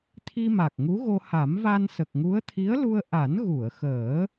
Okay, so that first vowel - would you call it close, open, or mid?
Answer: close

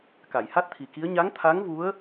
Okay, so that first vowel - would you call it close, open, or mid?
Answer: open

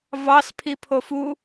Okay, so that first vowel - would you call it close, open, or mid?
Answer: open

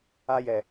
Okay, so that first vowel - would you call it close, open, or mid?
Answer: open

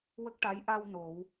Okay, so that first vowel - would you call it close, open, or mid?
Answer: mid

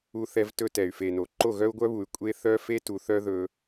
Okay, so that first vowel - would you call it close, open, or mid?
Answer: close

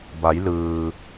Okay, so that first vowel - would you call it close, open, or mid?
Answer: open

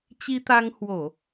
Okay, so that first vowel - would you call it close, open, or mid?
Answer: close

